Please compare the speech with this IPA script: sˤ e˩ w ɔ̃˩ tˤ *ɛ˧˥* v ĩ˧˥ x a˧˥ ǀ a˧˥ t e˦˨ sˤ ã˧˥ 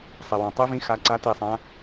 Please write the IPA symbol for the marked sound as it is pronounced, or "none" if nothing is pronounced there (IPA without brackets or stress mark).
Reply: ɨ˧˥